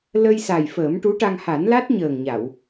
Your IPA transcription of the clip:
l ə˧ j s a˨˩ j f əː˨˩˦ m ʈ u˧˥ ʈ a˧ ŋ h a˨˩˦ n l a˦˥ t̚ ɲ əː˨˩ ŋ ɲ a˨˩˨ w

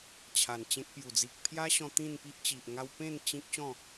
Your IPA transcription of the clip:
t͡ɕʰ a˨˩ n t͡ɕ ẽ˦ k̚ p j u˨˩ d͡z i˨ k̚ pʰ j a˦ ɕ ɔ̃˧ t̪ ĩ˥˧ n p i˦ ʔ t͡ɕ i˨ ʔ ŋ a˦ w p ẽ˥˧ n t͡ɕ ĩ˦ k̚ ɕ ɔ̃˥˧

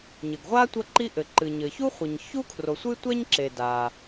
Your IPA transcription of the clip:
ɲ ɘ˩ ɡ ʁʷ a˥ tʷ ɐ˥ ǃ i˥ ʔ ɘ˩ ǃ ɨ˩ ɲ ɘ˩ ç u˥ χʷ i˩ ɲ ç u˥ kʰ r o˩ sʷ ɨ˥ tʷ ɛ˥ ɲ ǁ e˩ d a˩

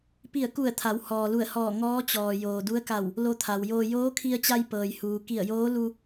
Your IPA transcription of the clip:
p i˧˩ ə̯ k u˧˩ ə̯ t̪ʰ a˩˧ w h ɔː˩ l u˧˩ ə̯ h ɔː˧˩ ŋ ɔː˧˥ t͡ɕ ɔː˩ j oː˩ d u˧˥ ə̯ k a˧˩ w | l o˧ t̪ʰ a˩ w j oː˧ j oː˧˥ kʰ i˧ ə̯ t͡ɕ a˧ j p ɤː˩ j h uː˩ k i˧˩ ə̯ j oː˧˥ l u˧

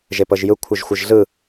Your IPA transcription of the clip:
ʒ e p ɤ ʒ j ɯ kʷʰ ɯ ʒ xʷ ɯ ʒ ɮ ɯ

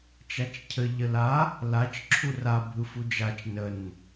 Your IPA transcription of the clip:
t͡ʃ a t͡ʃ cʰ ə ʎ ə l a | l a t͡ʃ ǁʰ u r a bʱ ɯ f u d͡ʒ a t͡ʃ n ə n

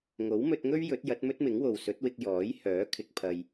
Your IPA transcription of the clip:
ŋ o˨˥ w m ɵ˧ t̚ ŋ ɵ˥ ɥ j ɵ˨˥ t̚ j ɐ˨˥ t̚ m ɵ˥ t̚ m ɪ˨˥ ŋ w o˨ w s ɵ˨˥ t̚ w ɪ˧ k̚ j ɔː˨˥ j h œː˨˥ kʰ ɪ˧ k̚ pʰ ɐ˧ j

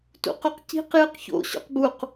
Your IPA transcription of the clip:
t ṵ q o q c i̤ q j ɨ q ç o̰ ɕ o̰ q b u q

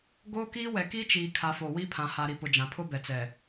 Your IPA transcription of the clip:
ɡ oː˦ k iː˦ w ɛ˨ k i˦ t͡ʃ iː˨ kʰ a˨ f o˨ w i˦ pʰ ã˨ h a˨ ɾ i˨ p ʊ˨ d͡ʒ ã˨ pʰ ʊ˦ b ɛ˨ t͡s ɛ˨

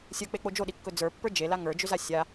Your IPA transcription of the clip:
sʲ ə˞ k͡p e k͡p o d͡ʒ o ɗ i kː ɵ d͡z ə˞ pː ə˞ d͡ʒ e l a ŋ ə˞ d͡ʒ ʏ z a sʲ a

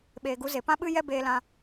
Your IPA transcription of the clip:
ɓ eː˨ ɡ u˨˦ z e˨ p ã˦ ɓ ɨ˦ j ɛ˦ b eː˧ l ã˧

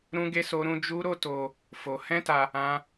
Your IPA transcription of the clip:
ɾ ũ˦ ɡ e˦ s o˦ ɾ ũ˦ d͡ʒ u˦ ɾ o˦ t o˧ | f o˧ h ɛ̃˦ t a˧ | ã˦

